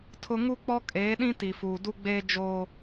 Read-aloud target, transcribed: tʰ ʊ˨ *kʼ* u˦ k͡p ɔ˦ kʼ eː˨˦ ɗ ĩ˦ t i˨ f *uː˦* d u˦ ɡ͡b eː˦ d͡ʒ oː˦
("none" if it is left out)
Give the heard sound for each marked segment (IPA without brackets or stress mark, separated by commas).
ŋ, uː˨